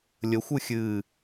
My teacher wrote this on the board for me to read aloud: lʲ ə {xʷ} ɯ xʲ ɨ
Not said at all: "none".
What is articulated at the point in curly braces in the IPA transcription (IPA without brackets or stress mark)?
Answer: xʷ